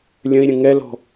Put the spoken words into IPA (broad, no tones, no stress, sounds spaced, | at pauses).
lʲ ə̃ i̯ ɾʲ ə̃ ŋ ɛ l ɔ̤